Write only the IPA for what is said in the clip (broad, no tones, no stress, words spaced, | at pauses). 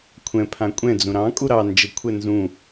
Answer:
kʷʰɛ̃ pʰãkʷʼɛ̃ d͡zũɾɑ̃ kʼuɾɑ nd͡ʒɘkʷʰɛ nzũ